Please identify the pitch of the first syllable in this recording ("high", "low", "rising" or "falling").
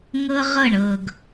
high